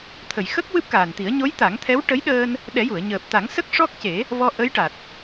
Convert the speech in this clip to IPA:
t̪ʰə˨˩˨j xə˦˥k̚ wɨ˦˥p̚kaː˨˩nt̪i˨˩˦ə̯ ɲo˧˥j t̪a˨˩˦ŋt̪ʰɛ˧˥w ʈə˧˥jɗəː˧n | ɗɛ˨˩˦ju˨˩˨ə̯ ɲəː˨˩p̚t̪a˨˩˦ŋsə˦˥k̚ ʂɔ˦˥k̚ce˨˩˦ | vɔ˧ ʔə˧˥jʈa˨˩t̚

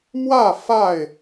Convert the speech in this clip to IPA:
mwä˥˨ fa˥˨ɪ̯

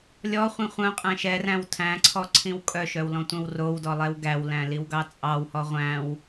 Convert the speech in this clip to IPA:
lʲɔχʷĩ χʷœ̃qʼæ̃ ʃɛræ̃w tʰæ̃ǀʰɔ ǀʰĩwkʼœʃœw lɔ̃tʷœ̃wrowdɔ lˠɛwɡæwlæ̃ liwɡɑt͡sʼɑwhɔ ʁʷæ̃w

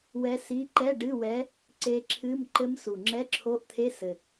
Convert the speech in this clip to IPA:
wɛ˧˥ si˧˥˧ ǃɛ˧˥˧ɖɨ˧˥˧wɛ˧˥ | ǀe˧˥ǁʰɨ˧˥˧m ǃɘ˧˥msu˨ ŋ͡ǁɛ˧˥˧ǁʰo˧˥˧ʔt̪ʰe˧˥˧ sɘ˨

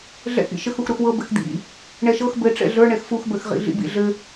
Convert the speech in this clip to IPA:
ɮɛ̰x ḭʃɘxux ɾuxwɤ bɘxd̪ḭ | ɳɛʃɤx bɘ ʈ͡ʂɛ̰ɮə˞ ɳɛxfuxbə˞x ʁḭɮḭbḭɮɘ

